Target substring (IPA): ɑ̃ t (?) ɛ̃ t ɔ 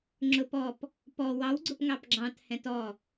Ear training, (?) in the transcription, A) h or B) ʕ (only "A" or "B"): A